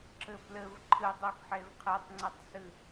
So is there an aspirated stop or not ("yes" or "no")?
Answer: yes